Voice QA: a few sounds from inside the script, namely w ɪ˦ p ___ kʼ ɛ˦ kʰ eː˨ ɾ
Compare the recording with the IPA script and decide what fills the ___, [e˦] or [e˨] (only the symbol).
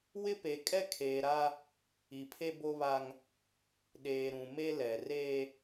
e˨